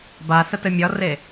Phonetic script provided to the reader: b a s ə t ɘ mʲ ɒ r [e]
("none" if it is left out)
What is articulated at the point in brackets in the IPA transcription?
e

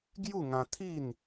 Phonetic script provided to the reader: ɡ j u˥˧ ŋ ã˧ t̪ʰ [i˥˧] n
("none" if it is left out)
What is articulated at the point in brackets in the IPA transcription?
i˥˧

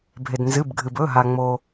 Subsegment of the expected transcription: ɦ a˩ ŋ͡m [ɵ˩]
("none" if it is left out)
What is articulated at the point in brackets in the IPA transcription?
o˩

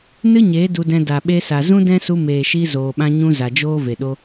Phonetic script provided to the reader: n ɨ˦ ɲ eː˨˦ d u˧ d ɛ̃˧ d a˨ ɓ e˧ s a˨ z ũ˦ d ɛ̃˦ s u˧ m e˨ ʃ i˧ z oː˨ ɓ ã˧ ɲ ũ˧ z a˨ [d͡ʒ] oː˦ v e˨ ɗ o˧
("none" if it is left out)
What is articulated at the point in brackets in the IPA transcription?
d͡ʒ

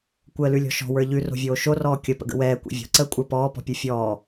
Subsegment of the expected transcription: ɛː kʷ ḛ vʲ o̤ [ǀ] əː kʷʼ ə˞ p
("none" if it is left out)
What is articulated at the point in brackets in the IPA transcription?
ǀ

